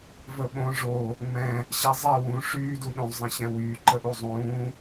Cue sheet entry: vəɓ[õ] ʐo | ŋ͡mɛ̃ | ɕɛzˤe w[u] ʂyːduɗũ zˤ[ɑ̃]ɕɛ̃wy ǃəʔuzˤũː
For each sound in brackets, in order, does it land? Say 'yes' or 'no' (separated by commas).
yes, no, no